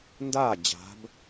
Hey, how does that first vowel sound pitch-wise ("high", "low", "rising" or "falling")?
falling